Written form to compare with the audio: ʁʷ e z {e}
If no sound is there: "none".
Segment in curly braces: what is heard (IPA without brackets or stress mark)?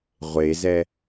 ɛ